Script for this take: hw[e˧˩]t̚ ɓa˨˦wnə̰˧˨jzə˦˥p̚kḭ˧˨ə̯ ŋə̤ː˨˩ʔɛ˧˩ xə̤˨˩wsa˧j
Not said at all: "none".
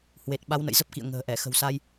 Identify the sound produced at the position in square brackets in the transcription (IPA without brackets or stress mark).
e˨˩